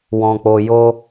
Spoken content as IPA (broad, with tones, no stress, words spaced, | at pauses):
wɔ̃˧k͡po˧ jo˦